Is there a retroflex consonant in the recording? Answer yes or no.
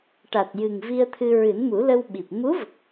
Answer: yes